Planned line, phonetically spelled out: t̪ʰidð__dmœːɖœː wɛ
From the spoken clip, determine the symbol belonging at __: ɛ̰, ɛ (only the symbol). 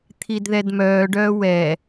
ɛ